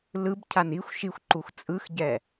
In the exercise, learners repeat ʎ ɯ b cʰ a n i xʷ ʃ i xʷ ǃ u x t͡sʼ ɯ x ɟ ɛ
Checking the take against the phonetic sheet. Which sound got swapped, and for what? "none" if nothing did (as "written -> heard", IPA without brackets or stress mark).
ʎ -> l